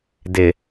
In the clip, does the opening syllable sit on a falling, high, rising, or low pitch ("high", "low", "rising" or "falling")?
low